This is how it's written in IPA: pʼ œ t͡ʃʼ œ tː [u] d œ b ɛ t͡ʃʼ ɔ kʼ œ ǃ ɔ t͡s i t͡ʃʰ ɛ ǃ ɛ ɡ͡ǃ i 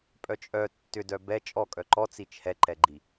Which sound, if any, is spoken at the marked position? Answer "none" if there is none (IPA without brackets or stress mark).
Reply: ʏ